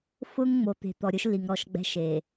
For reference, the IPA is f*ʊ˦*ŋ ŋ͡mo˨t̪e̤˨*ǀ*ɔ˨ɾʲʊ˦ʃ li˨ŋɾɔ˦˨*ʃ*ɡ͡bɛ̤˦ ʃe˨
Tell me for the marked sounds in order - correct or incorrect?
correct, incorrect: t̪, correct

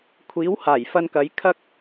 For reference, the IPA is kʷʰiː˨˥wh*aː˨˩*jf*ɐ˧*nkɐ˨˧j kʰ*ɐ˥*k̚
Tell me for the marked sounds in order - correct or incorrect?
correct, correct, correct

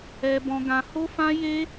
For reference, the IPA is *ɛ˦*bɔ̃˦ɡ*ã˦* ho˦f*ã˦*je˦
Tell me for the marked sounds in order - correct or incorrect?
correct, correct, correct

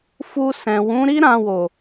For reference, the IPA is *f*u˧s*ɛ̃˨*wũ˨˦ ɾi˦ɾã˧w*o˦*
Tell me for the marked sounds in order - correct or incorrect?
correct, correct, incorrect: o˨

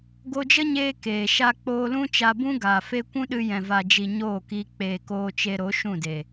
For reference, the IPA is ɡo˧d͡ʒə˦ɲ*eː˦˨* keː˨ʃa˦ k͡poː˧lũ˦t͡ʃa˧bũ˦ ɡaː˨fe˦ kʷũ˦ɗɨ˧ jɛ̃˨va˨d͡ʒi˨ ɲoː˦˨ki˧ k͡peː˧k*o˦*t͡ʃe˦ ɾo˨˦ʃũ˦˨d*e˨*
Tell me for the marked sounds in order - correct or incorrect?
incorrect: eː˧, incorrect: oː˦, correct

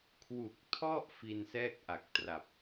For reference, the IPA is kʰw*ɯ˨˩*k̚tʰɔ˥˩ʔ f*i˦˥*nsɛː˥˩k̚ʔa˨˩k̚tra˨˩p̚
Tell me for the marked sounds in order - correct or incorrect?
incorrect: u˨˩, incorrect: i˧

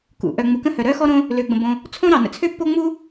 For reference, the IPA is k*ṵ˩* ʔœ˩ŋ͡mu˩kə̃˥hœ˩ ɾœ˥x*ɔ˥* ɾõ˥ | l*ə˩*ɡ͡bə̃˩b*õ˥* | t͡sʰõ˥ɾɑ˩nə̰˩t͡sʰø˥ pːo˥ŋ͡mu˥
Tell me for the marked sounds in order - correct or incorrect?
correct, correct, incorrect: ø˩, incorrect: õ˩

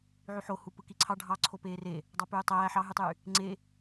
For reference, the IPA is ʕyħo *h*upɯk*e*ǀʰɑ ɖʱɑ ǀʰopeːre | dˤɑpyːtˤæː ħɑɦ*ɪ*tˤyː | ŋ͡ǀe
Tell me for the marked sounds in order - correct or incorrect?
correct, incorrect: i, incorrect: y

